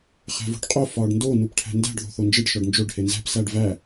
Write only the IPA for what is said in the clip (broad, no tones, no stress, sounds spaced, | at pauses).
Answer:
χ æ̤ v o̤ ɖ qʼ o f ɒː ɖ n d o n u p ʈʰ æ̤ n d æ̤ ɖ ð o̤ θ o n d͡ʒ e ɖ ʃ ɒ ɖ n d͡ʒ o ɖ h e n z æ̤ p s æ ɖ v æ